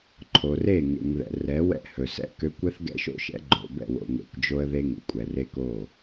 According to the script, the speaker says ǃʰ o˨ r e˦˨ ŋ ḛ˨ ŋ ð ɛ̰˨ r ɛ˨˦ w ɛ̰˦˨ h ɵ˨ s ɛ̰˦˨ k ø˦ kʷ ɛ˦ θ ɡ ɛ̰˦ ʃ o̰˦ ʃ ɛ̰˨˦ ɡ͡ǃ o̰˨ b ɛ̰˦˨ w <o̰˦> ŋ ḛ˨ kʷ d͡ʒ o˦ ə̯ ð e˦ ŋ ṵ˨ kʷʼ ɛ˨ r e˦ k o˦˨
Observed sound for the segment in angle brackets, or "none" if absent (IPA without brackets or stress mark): o̰˨